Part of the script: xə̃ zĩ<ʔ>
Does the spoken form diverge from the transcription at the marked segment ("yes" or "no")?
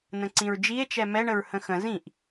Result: no